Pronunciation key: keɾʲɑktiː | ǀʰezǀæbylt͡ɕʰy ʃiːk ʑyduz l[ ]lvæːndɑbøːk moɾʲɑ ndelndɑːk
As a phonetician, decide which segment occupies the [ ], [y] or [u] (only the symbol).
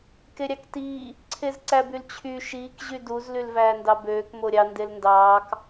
y